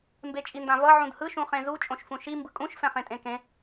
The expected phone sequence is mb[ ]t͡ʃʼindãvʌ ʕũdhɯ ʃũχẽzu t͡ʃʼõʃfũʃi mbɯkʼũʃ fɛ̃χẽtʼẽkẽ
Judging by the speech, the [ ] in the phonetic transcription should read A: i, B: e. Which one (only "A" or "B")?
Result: B